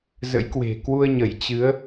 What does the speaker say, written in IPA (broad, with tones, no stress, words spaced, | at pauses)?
zə̰˧˥jkwe̤˨˩ kwu˧ə̯ɲə˧˩j t͡ɕɨ˨˦ə̯